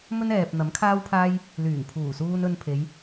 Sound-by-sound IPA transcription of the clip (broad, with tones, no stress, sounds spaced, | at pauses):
m ɵ˥ n ɛː˨ p̚ n̪ ɐ˨˥ m kʰ aː˥ w pʰ aː˥ j | l yː˨˩ ŋ pʰ uː˨˩ s uː˧ n ɵ˧ n pʰ e˨˧ j